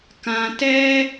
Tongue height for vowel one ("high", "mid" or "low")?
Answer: low